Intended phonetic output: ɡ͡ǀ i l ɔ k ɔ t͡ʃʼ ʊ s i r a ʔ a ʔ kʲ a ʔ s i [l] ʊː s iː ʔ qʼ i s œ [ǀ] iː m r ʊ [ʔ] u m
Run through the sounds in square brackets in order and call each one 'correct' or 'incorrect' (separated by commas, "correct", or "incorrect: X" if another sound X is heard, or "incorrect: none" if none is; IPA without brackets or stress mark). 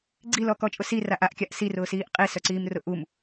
incorrect: r, correct, correct